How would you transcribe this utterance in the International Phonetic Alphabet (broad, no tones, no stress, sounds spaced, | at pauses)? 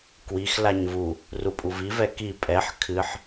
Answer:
k w i x l a ɲ v u | r u pʼ u v i v ɛ k i pʼ ɛ ħ kʰ ɨ ħ